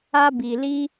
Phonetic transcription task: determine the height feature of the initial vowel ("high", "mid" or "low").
low